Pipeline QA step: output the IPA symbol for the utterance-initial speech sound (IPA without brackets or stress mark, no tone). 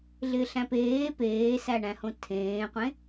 ɮ